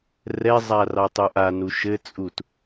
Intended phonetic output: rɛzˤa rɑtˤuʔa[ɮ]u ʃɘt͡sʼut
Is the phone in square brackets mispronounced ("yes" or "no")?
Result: yes